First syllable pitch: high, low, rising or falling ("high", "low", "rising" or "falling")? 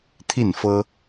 falling